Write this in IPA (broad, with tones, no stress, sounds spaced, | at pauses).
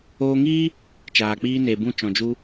oː˧ ŋ iː˦ | t͡ʃ aː˨ k͡p iː˧ n e˨ b ũ˦˨ t͡ʃ ɔ̃˨ d͡ʒ u˧